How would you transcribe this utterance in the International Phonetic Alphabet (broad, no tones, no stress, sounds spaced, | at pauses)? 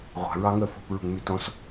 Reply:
ʁʷ a̤ ɹ ɑ ŋ œ f o̤ p ɹ ṳ ŋ m y t ɔ̃ s